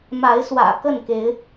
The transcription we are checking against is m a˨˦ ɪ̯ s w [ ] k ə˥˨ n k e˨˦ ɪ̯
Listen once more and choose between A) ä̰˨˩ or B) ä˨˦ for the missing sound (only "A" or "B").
A